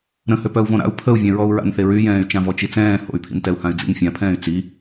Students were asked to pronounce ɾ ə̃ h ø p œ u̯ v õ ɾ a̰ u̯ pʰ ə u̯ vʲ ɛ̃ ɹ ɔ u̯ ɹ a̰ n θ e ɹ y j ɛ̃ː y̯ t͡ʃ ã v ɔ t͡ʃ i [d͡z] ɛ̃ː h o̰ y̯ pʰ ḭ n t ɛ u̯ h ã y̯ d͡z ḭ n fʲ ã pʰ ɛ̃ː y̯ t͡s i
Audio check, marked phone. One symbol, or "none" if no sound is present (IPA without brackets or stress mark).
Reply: t͡s